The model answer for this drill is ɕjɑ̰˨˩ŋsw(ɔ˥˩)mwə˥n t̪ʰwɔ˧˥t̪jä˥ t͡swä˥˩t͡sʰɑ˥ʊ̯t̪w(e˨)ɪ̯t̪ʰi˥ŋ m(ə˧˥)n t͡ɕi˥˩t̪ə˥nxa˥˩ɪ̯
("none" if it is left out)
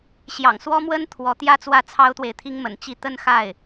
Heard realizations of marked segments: ɔ˥, e˨, ə̰˨˩

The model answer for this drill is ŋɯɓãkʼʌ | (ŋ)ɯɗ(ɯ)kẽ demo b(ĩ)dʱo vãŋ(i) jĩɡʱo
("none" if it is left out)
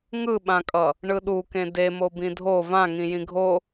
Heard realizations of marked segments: ɳ, u, ĩ, ĩ

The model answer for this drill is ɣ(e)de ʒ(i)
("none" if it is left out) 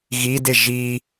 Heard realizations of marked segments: i, i

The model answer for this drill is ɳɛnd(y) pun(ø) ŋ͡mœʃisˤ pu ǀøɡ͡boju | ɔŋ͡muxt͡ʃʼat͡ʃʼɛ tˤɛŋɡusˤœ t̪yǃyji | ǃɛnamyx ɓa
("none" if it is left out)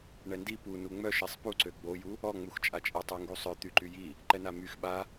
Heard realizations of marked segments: i, u

